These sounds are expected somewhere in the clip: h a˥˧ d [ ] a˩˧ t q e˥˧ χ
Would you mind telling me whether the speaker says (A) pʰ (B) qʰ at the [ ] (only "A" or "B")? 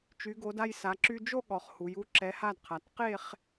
B